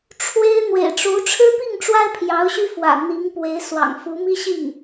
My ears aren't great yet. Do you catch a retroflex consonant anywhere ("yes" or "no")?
yes